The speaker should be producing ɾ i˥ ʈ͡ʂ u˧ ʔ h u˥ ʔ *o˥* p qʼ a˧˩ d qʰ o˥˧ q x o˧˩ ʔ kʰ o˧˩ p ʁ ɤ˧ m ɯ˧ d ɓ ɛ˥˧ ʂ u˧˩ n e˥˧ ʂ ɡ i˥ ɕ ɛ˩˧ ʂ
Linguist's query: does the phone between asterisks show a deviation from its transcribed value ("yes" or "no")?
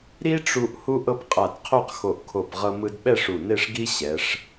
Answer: yes